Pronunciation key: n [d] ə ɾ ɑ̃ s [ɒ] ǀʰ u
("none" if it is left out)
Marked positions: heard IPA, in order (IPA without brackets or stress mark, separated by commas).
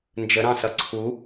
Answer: d͡ʒ, ʌ